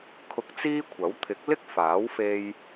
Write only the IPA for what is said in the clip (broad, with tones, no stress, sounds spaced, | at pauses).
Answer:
kʰ ʊ˧ k̚ t͡s iː˥ kʷʰ ɐ˨˥ w t̪ʰ ɪ˨˥ k̚ l ɪ˥ k̚ f aː˨˥ w f e˧ j